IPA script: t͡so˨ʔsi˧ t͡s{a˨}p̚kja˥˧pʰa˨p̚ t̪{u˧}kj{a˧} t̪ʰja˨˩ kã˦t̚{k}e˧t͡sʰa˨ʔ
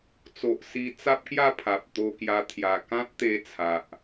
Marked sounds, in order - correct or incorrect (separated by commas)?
incorrect, incorrect, correct, incorrect